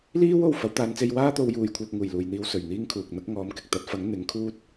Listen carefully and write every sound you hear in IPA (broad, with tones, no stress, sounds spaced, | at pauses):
l iː˥ w o˨˩ w f ɐ˨˥ w t̪ aː˨˧ n t͡s e˧ j w aː˥ t̪ o˨˧ w j uː˨ j kʷʰ œː˧ k̚ ŋ uː˨˩ j l uː˨ j n̪ iː˧ w s ɵ˨˩ ɥ n̪ iː˥ ŋ kʰ uː˨ k̚ n̪ ɐ˥ k̚ ŋ ɔː˨˧ m k ɪ˨ k̚ t̪ ɐ˨˥ t̚ f ɐ˨˥ ŋ n̪ ɪ˨˥ ŋ kʰ uː˥ t̚